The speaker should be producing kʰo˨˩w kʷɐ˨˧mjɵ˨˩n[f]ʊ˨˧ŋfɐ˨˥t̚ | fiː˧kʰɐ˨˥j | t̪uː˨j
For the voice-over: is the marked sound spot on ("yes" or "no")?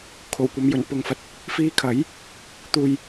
no